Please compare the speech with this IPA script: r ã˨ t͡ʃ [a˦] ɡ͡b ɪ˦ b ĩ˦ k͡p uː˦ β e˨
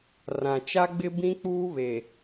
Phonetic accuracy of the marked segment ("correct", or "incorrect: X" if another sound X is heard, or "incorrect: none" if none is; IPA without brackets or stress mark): correct